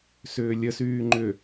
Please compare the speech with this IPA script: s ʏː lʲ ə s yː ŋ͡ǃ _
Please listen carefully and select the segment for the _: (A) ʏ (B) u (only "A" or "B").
A